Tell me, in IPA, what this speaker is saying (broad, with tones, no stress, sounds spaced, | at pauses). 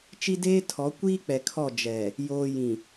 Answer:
t͡ʃ i˦ d eː˦ tʰ ɔ˨˦ kʷ iː˦ k͡p ɛ˨ kʰ ɔ˦˨ d͡ʒ ɛ˨ | j oː˨ j ĩ˨